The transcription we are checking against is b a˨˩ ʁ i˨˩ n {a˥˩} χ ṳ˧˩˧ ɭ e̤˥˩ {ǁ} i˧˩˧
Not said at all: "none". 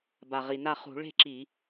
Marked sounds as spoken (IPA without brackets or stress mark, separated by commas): a˥˩, ǁ